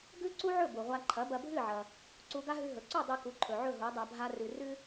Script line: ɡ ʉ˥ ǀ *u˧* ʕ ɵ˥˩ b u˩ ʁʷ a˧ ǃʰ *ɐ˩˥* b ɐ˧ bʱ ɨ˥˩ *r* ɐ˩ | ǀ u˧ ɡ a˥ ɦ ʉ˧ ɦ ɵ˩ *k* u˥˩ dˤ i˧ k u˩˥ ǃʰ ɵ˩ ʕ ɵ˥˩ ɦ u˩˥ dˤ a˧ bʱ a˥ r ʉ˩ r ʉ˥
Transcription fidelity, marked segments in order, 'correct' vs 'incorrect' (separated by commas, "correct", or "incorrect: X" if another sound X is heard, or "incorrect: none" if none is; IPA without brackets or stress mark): incorrect: u˥, correct, incorrect: ʕ, incorrect: ǀ